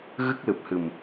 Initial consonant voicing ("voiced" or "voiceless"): voiced